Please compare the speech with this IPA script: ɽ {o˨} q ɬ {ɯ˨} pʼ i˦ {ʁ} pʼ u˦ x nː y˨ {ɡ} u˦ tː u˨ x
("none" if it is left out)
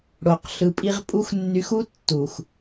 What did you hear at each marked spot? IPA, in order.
o˨, ɯ˨, ʁ, x

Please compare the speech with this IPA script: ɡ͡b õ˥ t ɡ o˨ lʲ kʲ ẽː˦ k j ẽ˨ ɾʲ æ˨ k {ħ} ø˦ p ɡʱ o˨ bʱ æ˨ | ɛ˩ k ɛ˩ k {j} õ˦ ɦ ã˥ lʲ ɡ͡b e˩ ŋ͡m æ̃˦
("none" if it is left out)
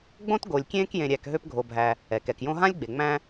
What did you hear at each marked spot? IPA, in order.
ɦ, j

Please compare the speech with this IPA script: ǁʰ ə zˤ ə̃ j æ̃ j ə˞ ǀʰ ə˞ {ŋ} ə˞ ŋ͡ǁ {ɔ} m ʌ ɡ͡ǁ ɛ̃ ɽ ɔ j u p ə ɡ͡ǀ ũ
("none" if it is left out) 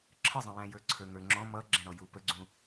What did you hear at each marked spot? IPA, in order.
ŋ, ɔ̃

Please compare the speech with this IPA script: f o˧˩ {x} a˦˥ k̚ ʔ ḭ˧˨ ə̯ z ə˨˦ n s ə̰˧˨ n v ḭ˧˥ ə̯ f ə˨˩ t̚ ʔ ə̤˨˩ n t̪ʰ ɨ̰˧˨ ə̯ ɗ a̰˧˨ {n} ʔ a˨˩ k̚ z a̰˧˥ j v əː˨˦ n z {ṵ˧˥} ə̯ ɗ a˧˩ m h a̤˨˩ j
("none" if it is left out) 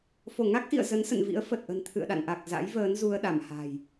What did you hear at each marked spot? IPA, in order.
ŋ, n, u˧

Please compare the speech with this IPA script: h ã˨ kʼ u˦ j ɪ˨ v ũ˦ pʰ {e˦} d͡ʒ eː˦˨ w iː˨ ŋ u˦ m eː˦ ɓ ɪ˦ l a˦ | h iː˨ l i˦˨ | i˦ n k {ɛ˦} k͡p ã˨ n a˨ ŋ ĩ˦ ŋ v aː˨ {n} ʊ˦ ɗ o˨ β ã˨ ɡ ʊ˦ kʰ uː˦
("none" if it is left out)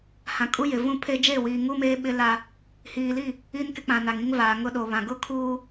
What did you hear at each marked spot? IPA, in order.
e˦, ɪ˦, ŋ

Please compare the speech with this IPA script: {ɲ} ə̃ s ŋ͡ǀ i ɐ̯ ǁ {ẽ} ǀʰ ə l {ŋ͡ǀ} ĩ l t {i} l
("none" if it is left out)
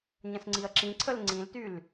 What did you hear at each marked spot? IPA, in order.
ɲ, ĩ, ŋ͡ǀ, y

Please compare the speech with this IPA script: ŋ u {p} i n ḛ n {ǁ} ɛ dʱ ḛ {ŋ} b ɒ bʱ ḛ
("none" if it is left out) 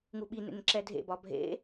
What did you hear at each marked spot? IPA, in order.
ɓ, ǁ, none

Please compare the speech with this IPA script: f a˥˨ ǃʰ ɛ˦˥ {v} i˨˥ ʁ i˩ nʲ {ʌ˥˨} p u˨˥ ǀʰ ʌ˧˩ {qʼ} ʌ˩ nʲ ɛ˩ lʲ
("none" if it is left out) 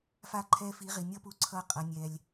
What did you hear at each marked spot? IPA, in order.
f, ʌ˦˥, qʼ

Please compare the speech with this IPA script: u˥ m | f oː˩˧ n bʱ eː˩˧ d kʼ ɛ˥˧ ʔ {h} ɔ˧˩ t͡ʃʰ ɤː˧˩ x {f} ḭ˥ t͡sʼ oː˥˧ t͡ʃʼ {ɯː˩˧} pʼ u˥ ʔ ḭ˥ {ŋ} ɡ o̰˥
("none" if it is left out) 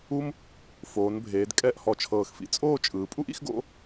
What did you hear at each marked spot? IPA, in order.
h, f, ɯː˩˧, x

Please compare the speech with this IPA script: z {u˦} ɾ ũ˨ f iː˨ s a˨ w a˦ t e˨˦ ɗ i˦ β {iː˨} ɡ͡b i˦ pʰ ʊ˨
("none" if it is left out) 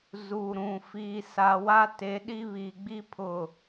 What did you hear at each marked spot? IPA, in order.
u˨, iː˨

